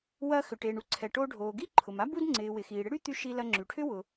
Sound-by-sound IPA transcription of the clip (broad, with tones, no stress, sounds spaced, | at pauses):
w ɐ˧ x ʏ˩ ʈ e˩ ɳ u˥ ǀʰ ɛ˩ ʈ o˧ ɖʱ oː˩ ɡ i˥ ǃʰ ʊ˩ m a˥ b u˥ d ŋ͡ǀ ɪː˩ w ɪ˩ x iː˩ ɽ ɪ˥ ɽ y˥ t̪ y˧ ʃ i˧ l ɐ˧ ŋ͡ǁ y˩ ʈʰ ʏ˥ w ʊ˩